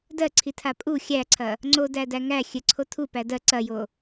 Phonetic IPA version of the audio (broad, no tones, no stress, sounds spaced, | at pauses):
d ɜ ǀʰ i tʰ a pʼ u xʲ æ ǀʰ ɐ | ŋ͡ǀ o d æ d æ ŋ æ xʲ ɘ ǀʰ o tʰ u p æ d ɜ ǀ ɐ j o